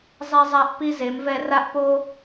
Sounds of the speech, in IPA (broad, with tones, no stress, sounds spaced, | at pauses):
zˤ ɛ˦ zˤ a˦ ʔ p i˦ z e˨˦ m v ɛ˦ r a˦ ʔ p o˦